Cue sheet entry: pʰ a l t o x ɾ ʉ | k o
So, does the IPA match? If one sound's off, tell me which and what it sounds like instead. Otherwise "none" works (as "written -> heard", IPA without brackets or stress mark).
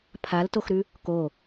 none